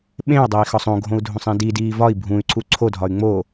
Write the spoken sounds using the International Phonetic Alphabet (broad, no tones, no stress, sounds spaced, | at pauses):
ɓ ẽ u̯ dˤ e i̯ x ɒ sˤ õ ɡʱ õ u̯ dʱ õ sˤ ẽ d i d iː v ɒ i̯ bʱ ũ y̯ ǀ u ǀʰ o dʱ ɒ y̯ ŋ͡m o